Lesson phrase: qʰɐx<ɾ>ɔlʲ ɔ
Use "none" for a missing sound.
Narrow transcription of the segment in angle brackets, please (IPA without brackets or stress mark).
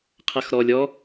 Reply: ɾ